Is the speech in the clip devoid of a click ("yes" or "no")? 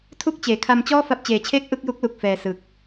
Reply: yes